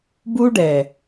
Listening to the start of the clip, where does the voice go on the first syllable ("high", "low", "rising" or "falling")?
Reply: high